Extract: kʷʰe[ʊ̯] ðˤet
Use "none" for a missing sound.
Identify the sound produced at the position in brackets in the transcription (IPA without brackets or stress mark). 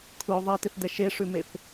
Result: ʊ̯